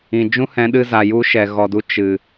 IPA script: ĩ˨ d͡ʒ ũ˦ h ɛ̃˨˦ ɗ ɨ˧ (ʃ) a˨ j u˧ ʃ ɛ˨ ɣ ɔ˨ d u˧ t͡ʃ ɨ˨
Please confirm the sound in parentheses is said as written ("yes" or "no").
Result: no